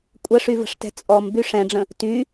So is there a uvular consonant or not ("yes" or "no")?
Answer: no